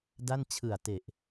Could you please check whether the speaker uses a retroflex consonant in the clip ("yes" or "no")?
no